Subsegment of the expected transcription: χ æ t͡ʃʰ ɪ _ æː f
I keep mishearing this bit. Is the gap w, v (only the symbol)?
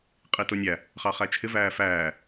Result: v